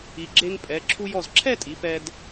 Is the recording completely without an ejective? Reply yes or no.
no